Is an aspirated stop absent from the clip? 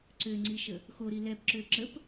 yes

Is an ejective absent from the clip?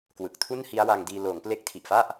yes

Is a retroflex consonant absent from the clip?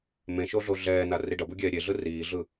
no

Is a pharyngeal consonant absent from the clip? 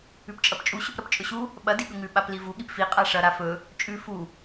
yes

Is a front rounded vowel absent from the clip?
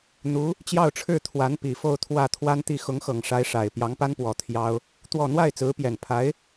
yes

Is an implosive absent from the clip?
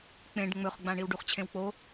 yes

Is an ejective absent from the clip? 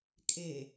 no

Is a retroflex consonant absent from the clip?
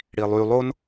no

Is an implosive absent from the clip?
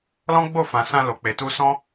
yes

